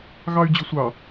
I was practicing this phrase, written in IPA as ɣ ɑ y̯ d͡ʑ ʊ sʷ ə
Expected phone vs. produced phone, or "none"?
ə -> ɑ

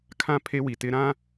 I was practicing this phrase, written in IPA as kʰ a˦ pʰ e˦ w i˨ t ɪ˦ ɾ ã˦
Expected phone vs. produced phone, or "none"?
a˦ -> ã˦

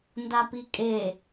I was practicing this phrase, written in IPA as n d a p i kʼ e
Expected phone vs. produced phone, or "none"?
none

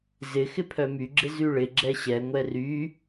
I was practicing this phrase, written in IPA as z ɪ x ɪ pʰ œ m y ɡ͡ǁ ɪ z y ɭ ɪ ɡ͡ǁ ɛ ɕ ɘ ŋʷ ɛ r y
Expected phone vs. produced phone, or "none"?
ɘ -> ɛ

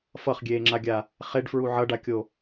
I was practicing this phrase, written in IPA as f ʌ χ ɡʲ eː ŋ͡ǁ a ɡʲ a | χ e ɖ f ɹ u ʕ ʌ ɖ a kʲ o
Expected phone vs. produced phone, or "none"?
none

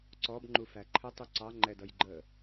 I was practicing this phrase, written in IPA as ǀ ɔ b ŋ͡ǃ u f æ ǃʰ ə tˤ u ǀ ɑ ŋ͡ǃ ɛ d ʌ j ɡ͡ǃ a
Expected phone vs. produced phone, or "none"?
a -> ə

